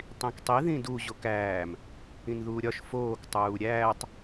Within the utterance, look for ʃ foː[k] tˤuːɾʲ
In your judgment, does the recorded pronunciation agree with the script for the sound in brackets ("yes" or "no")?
yes